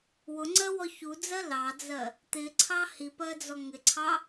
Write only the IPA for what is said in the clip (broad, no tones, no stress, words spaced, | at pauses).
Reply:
wʊŋ͡ǀɜwɔ çud͡zɜ lɑd͡zɜ | t̪ɪǀʰɑ hipɜd͡zɔ ŋɪǀʰɑ